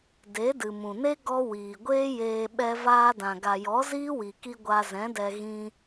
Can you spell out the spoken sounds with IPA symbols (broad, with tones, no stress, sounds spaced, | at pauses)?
d e˨˦ d ɨ˨ m ũ˨ n e˦ ɡ ɔ˦ w iː˨ ɡʷ eː˦ j eː˧ ɓ ɛ˧ v aː˧ d ã˨ ɡ a˨ j ɔ˨˦ z iː˦ w i˨ k i˧ ɡʷ a˧ z ɛ̃˨˦ d ɛ˧ ɣ ĩ˧